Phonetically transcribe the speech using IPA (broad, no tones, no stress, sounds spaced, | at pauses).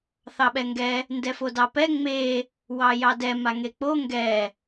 θ ɑ ɓ ɛ ŋ ɡ ɛ | n d ɛ f o d ɑ p ɛ ŋ͡m e | w ɑ j ɑ d ɛ m a ŋ e k͡p o ŋ ɡ ɛ